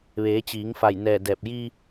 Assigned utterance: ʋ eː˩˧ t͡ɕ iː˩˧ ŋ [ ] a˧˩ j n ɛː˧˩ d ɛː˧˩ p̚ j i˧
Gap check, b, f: f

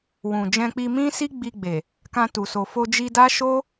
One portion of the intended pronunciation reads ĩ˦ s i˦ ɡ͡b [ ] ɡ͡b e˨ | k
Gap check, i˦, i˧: i˧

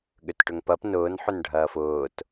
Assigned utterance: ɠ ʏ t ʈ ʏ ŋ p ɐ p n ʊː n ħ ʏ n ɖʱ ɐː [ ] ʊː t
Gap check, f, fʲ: f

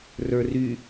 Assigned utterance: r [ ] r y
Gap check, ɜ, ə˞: ə˞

